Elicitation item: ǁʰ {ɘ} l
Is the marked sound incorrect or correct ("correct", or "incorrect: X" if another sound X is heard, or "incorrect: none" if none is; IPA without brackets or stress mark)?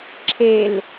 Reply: incorrect: e